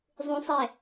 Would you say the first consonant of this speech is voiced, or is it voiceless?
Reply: voiced